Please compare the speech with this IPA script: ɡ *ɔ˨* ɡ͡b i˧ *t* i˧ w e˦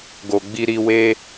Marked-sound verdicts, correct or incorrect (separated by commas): incorrect, incorrect